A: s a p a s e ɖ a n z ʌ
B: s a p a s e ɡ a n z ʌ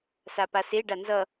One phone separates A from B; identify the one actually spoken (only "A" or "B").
A